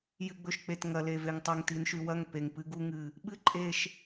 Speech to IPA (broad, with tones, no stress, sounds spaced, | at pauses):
j ɨ˨ ɡ͡b ɵ˨ ʃ k͡p e˨ t ŋ ɐ˨ l e˨ v e˨ ŋ tˤ ɐ˨ ŋ t i˨ n ʃ ʉ˨ w ɐ˦˨ ŋ p e˨ ŋ p ɨ˦ ɡ u˦ ŋ ɨ˨ | ɓ ɨ˦ ǃʼ e˨ ʃ